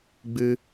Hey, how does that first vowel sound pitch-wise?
high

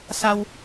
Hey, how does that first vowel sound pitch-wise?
low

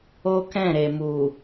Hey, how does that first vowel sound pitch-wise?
high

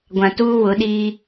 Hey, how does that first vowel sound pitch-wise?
low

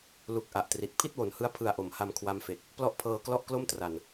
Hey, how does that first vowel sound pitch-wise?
low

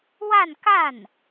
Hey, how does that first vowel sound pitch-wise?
falling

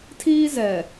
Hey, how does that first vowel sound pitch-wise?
high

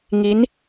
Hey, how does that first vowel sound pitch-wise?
rising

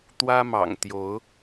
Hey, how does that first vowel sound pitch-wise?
high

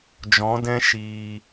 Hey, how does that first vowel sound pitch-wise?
rising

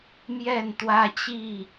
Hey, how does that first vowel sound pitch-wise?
falling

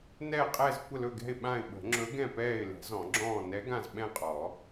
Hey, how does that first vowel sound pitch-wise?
falling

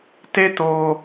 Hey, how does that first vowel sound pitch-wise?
high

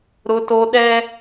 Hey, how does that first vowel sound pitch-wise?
high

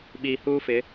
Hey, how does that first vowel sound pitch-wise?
low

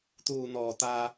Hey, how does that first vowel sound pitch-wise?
low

